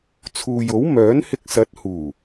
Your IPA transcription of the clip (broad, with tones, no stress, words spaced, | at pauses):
t͡sʰuː˨jo˨˥wmœː˨˥n hɪ˧k̚sɐ˨˥t̚ huː˨˩